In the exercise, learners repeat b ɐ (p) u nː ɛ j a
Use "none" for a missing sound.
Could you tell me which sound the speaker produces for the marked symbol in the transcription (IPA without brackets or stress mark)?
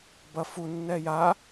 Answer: f